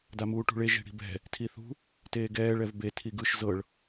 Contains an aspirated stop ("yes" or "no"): yes